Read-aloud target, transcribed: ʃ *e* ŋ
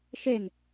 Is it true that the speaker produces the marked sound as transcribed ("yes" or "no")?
yes